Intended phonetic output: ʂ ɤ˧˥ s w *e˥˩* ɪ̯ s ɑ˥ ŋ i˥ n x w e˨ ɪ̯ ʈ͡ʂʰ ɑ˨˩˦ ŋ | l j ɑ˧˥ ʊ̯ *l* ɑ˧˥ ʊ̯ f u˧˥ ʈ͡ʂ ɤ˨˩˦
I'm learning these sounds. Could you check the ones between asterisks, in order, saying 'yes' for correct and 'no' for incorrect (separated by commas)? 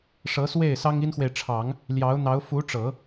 yes, no